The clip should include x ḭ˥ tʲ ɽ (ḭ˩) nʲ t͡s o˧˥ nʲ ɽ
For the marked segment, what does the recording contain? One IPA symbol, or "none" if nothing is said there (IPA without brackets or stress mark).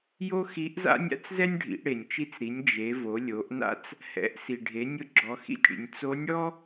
ḭ˩